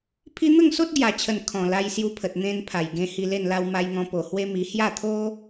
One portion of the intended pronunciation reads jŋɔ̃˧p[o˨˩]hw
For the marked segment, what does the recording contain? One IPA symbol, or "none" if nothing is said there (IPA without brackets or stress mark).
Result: o˨˩